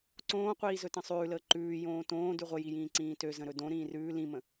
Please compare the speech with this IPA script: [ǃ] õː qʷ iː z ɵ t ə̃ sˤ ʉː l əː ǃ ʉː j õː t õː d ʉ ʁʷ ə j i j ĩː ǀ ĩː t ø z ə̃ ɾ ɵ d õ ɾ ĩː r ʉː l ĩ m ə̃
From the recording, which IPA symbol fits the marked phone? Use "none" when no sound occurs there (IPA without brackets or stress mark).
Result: ǀ